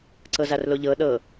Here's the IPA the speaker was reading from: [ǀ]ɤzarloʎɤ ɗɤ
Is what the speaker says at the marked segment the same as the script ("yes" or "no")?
yes